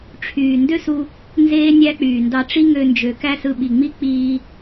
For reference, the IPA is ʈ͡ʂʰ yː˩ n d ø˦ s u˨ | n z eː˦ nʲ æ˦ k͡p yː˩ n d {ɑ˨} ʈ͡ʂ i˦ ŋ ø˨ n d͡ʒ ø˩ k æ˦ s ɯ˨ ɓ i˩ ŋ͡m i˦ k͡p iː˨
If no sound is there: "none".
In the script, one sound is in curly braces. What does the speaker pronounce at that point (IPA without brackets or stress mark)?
ɑ˨